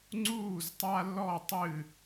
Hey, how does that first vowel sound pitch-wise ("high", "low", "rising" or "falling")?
falling